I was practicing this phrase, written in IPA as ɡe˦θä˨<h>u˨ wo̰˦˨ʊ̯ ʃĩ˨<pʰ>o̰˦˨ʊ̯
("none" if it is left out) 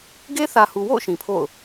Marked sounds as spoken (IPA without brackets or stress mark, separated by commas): h, pʰ